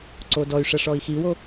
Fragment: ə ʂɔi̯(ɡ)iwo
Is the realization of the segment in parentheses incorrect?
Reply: yes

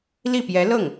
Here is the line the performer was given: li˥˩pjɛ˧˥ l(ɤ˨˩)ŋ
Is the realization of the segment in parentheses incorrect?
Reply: yes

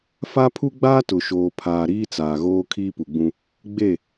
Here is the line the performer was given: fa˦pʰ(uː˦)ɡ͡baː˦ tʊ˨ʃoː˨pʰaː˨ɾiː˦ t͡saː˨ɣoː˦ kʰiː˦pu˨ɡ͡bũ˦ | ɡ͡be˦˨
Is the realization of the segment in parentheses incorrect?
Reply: yes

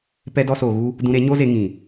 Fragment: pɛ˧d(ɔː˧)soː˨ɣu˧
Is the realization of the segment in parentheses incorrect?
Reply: yes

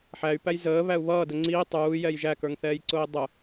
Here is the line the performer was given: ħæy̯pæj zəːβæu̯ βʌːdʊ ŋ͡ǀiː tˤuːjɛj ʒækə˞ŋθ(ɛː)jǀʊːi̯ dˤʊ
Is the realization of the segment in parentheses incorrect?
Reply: no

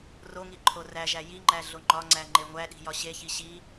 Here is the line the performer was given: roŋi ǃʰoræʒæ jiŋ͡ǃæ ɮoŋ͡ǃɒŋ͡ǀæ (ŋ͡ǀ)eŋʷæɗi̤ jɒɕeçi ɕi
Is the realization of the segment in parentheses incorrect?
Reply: yes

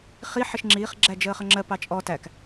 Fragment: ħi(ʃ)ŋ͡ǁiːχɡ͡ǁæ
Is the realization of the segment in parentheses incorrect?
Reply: no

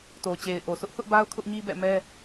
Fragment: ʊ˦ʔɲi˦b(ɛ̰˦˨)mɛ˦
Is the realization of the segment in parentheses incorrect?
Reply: no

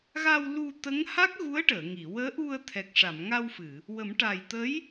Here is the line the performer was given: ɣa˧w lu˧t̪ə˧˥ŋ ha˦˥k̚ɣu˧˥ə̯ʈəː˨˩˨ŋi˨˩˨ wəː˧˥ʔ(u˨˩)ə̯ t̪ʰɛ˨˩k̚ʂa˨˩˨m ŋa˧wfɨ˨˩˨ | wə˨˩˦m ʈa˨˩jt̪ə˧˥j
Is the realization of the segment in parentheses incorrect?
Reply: yes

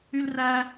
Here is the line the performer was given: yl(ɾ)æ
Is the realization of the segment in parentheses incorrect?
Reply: yes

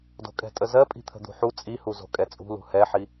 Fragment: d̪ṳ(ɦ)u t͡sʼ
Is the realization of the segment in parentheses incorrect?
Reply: yes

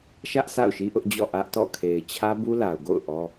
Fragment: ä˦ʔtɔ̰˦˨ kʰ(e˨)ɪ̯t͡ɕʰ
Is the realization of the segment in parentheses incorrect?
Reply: no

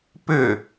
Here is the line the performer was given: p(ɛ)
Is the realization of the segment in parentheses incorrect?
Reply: yes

